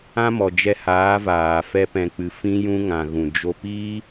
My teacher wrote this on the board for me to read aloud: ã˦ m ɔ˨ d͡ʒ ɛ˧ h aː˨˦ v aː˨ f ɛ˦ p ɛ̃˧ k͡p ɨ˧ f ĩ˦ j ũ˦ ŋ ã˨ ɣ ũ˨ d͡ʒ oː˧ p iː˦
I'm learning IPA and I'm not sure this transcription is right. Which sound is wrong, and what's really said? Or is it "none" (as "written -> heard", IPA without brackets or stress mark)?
oː˧ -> o˧